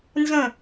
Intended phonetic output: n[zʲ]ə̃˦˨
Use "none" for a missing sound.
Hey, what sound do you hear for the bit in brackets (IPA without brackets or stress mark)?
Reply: z